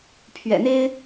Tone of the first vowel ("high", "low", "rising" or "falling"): low